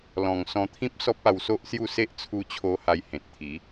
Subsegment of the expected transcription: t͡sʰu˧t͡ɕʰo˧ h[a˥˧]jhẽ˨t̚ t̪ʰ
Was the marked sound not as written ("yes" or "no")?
yes